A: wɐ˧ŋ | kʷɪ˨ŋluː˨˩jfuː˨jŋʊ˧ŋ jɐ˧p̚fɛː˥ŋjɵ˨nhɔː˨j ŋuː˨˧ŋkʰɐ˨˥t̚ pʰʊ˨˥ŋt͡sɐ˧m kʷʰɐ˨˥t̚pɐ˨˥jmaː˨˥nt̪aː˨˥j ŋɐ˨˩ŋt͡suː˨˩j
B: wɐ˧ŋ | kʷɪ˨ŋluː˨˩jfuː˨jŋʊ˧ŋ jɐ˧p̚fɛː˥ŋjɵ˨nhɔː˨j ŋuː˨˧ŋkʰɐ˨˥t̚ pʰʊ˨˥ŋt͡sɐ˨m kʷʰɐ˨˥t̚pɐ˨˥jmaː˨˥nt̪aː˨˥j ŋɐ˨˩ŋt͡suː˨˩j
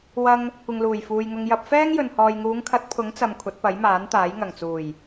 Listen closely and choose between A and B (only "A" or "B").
B